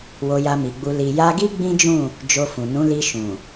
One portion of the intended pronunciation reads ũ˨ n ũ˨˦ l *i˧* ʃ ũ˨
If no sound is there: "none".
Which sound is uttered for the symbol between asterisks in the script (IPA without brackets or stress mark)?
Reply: i˧